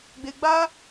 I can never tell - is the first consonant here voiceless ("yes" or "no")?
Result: no